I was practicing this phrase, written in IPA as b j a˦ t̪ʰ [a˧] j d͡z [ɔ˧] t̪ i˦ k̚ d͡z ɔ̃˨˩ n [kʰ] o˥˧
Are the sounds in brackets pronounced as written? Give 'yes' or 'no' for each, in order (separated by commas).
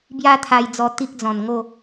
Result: yes, yes, no